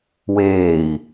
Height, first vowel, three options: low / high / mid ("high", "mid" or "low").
mid